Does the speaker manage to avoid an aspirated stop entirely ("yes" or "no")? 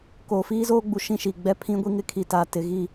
no